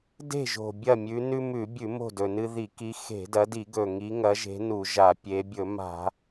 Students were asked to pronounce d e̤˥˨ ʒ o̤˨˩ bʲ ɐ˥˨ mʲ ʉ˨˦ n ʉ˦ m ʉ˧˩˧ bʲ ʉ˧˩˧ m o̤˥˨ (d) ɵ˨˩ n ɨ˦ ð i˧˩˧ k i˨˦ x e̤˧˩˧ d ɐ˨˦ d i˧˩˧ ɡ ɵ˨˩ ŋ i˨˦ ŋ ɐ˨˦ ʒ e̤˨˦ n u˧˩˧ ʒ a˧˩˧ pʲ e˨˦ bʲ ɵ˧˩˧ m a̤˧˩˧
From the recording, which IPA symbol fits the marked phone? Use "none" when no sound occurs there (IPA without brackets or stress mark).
d